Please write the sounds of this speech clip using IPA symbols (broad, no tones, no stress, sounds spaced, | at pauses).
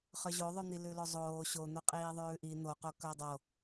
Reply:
χ œ ʑ o ðˤ ʉ n̪ i l ʉ l o zˤ oː ɕ o n̪ o qʼ iː ðˤ ʉː ʔ i n̪ o q o k œ dˤ o